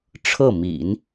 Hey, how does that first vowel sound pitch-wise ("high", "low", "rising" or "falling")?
falling